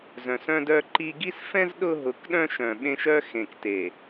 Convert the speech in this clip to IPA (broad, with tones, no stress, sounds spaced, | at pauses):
z œ̃˨ s œ̃˦ d œ˦ ǃ i˦ ɡ i˦ s f ɛ̃˦ z ɗ ʊ˦ ɦ ʊ˨˦ k ɗ œ̃˦ ʃ œ̃˨ ɓ ẽ˦ ʃ œ˦ x ẽ˨ k t e˨